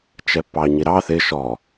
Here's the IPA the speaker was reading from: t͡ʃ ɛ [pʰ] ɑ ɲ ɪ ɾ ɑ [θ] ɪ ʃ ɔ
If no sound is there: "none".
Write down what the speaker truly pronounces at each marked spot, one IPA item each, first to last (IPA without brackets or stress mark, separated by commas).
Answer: pː, θ